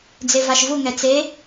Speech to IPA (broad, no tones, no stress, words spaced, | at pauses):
d͡zevaʃvuŋɛ t͡se